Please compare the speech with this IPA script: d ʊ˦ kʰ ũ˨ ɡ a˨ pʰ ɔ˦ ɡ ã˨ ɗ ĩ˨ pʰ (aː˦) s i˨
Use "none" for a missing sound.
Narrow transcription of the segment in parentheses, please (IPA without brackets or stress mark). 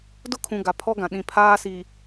aː˦